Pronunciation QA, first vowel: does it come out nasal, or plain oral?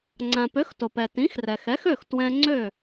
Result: nasal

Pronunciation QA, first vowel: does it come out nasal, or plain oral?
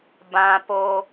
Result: nasal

